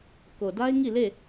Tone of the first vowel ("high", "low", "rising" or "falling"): low